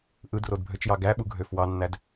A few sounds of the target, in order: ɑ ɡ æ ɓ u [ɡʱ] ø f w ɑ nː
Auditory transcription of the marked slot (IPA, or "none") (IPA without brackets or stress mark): ɡʱ